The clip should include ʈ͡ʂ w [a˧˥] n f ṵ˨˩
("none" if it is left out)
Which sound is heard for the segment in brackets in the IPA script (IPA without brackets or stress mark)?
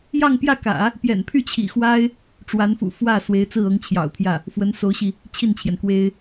a˧˥